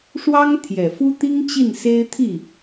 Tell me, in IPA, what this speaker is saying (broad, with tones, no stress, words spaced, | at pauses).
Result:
ʂwɑ˥ŋt̪ʰjɛ˨˩fu˥t̪i˥ŋ t͡ɕi˥˩nse˥ɪ̯ t̪ʰi˥˩